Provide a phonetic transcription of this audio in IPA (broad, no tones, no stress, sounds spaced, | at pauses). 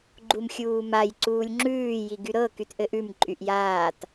ɡ͡ǃ u m xʲ uː m a j ǀ uː lʲ ŋ͡ǁ ʉː j i ɡ y ɾ ɤ k y t ʔ ɘ ʔ ʉ m ǃʼ y ʔ j aː t